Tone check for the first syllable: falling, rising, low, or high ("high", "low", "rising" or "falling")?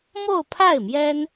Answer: falling